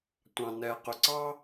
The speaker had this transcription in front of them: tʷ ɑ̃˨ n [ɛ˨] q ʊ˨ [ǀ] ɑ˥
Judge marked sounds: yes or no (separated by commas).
yes, yes